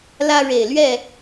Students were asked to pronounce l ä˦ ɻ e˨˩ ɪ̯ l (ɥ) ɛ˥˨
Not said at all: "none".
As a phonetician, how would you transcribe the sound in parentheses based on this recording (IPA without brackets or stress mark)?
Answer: ɥ